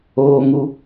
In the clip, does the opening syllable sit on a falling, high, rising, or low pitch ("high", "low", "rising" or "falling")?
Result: high